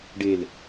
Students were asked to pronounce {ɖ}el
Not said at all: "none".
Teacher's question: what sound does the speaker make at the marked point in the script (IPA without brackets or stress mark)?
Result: ɖ